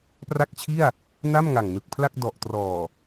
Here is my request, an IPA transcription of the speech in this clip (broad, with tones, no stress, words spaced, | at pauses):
pra˥˩k̚t͡ɕʰi˥˩a̯ | na˥˩mŋa˨˩ŋnɯ˨˩k̚pʰla˥˩k̚ dɔ˨˩ʔtrɔː˨˩